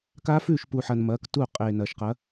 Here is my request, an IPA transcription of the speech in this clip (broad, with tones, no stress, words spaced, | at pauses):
kaː˦˥fʉː˥˩ʃpu˨ħɐ˨n mɐː˨˥ktu˥˩ qʼeː˨ nɐː˨ʃqɐ˨˥